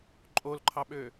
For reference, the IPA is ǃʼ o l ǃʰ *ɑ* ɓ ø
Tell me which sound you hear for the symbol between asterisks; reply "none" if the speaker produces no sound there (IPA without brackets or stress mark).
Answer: ɑ